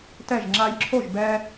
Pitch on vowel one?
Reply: falling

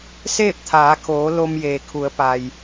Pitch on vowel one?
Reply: falling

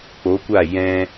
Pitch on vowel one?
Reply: rising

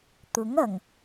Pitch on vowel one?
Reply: rising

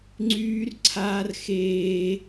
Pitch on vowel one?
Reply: high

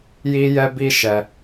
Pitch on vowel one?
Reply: high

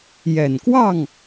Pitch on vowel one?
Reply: low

